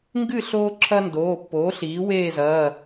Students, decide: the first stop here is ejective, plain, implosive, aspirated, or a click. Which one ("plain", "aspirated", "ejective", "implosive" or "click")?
plain